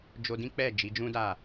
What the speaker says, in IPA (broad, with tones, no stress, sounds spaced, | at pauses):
d͡ʒ o˧ d ĩ˦ k͡p ɛ˦˨ d͡ʒ i˨˦ d͡ʒ ũ˦ d a˦˨